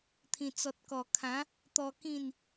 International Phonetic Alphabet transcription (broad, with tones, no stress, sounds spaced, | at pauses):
t̪ʰ ĩ˨˩ t͡s ɔ˨ t̚ k ɔ˨˩ kʰ ã˨˦ | t̪ ɔ˧ k ĩ˥˧ n